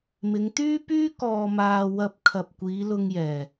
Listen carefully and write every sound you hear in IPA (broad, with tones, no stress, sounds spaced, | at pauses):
m ɪ˨˧ ŋ t̪ yː˥ p yː˥ k ɔː˧ m aː˧ w ɐ˧ p̚ kʰ ɐ˨ p̚ kʷ iː˨˧ l ʊ˧ ŋ j ɛː˨